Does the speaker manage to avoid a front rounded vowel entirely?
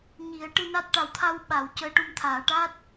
yes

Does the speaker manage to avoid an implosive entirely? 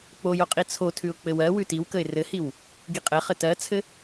yes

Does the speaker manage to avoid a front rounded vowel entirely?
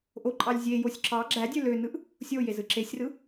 no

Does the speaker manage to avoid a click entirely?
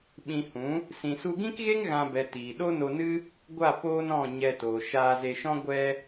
yes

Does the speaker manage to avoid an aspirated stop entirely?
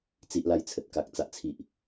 no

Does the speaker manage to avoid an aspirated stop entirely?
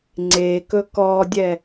yes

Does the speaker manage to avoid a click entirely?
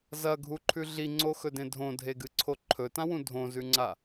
no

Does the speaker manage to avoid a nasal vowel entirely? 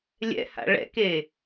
yes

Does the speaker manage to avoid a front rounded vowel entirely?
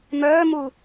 no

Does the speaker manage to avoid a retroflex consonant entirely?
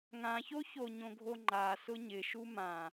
yes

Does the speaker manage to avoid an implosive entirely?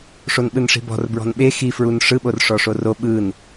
no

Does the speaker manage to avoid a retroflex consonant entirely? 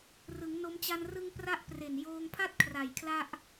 yes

